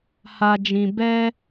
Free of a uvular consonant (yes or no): yes